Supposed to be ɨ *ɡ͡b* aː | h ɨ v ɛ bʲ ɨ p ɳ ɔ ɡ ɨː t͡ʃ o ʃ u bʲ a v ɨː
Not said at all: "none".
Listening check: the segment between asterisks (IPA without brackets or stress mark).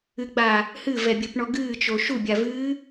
ɡ͡b